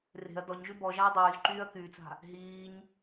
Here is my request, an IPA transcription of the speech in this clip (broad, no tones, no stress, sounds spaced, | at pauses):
r e̤ ɐ̯ d ɔ ɲ ʒ y b ɔ ʒ a ɐ̯ dˤ yː z ǃ yː ɐ̯ k yː t͡s a̤ | ɦ iː ɲ